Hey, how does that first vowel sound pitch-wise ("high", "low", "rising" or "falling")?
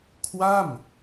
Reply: falling